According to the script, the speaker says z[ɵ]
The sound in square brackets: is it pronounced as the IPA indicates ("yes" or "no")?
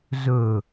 yes